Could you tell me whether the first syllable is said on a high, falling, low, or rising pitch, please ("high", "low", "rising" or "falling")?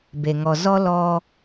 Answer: low